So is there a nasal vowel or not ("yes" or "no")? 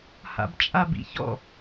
no